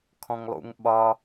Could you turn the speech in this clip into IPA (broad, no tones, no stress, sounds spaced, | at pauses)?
kʰ ɔ̃ ŋ lˠ ṵ ŋ ɓ ɒ